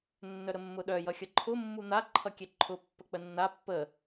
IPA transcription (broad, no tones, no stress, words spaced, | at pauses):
nːœɾəmːʊɗœ jʌxʲʌǃʰʊ mːun̪a ǃʰʌkʲɛǃʰʊ pːək͡pənːa pːə